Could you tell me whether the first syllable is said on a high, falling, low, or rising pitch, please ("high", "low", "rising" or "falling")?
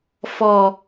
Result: low